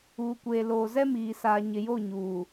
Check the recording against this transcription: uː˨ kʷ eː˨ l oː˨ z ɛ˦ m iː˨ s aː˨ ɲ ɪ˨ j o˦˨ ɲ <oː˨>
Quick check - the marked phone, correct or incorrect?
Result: incorrect